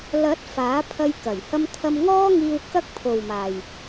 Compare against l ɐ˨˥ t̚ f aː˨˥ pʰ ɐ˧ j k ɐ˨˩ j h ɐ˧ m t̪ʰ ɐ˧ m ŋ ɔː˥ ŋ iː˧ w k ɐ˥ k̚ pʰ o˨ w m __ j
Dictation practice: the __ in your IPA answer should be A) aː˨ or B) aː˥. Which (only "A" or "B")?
A